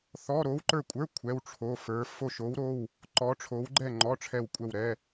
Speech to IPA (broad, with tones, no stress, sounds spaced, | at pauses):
θ ɔ˧˥˧ ɾ o˧˥ w ǃ ə˞˦˨ kʷʼ ə˞˧˥˧ kʷʰ ɛ˧˥˧ w ʈ͡ʂʰ o˧˥˧ f ə˞˧˥ f o˦˨ ʃ o˧˥ w ɾ o˧˥˧ w | ǃ ɔ˧˥ ʈ͡ʂʰ o˧˥ w ɡ͡ǃ ɛ˦˨ ŋ͡ǃ ɔ˧˥˧ ʈ͡ʂʰ ɛ˦˨ w kʷʼ ɛ˦˨ w ɾ ɛ˧˥˧